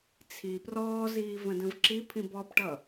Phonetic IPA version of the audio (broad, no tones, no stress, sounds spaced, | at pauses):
t͡sʰ i p r ɔː z iː v ə̃ d ə̃ v ǁ i pʰ ĩ b ɔ p ʈ ʌ